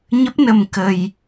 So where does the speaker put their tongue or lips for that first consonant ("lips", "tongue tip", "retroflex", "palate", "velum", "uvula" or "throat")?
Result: palate